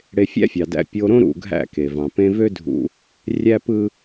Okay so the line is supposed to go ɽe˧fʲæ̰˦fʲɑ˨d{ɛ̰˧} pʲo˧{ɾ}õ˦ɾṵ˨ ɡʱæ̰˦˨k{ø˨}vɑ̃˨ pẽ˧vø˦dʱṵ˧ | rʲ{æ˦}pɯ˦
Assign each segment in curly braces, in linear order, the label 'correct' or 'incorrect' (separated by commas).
incorrect, correct, incorrect, correct